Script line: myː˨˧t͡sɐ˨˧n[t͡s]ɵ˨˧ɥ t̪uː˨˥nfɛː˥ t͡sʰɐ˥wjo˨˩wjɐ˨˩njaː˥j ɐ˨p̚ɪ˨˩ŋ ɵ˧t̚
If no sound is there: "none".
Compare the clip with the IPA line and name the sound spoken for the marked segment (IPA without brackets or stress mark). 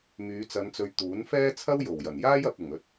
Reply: t͡s